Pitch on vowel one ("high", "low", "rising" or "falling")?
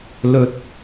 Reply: low